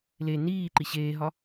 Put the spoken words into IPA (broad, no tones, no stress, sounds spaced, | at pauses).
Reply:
l e n iː ǃ i ɕ eː ɦ ɒ